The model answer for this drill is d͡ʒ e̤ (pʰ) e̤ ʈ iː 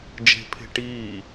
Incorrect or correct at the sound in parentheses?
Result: correct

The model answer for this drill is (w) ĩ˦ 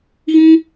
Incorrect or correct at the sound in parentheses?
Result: incorrect: ɣ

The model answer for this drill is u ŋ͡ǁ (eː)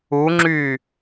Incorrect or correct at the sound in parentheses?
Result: incorrect: yː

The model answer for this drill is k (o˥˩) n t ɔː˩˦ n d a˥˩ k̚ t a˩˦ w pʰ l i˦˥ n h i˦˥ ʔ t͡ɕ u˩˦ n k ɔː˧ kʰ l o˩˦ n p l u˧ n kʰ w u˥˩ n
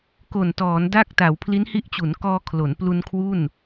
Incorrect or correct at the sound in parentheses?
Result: incorrect: o˨˩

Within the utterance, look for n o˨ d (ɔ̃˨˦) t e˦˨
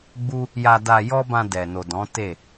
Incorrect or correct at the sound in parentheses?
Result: correct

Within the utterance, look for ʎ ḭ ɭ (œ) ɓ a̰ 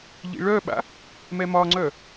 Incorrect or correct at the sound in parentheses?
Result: correct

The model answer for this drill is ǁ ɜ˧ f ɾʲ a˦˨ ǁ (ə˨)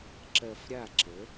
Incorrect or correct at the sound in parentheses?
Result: incorrect: ə˨˦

